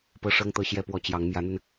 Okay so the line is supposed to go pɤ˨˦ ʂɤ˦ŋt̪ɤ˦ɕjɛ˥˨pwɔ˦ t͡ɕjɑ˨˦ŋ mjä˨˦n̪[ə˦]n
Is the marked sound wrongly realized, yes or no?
yes